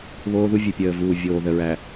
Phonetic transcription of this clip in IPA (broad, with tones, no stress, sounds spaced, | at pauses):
β oː˦ ð u˦ vʲ ɨ˨ pʲ əː˨ v uː˨ vʲ oː˨ ð ə˨ ɹ æ˨